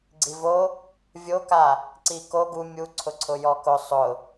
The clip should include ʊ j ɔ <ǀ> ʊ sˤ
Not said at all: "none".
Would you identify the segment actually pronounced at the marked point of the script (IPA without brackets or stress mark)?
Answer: k